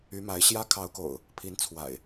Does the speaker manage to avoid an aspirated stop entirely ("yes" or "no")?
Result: no